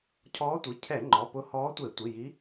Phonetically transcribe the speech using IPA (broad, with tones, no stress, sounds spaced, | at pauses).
cʰ ɔː˧˥ tʷ i˩˧˩ cʰ ɛ˧˩˧ ŋ͡ǃ ɔ˩˧˩ p ʊ˧˥ h ɔː˧˥ tʷ e˧˩˧ tʷ i˩˧˩ j i˧˥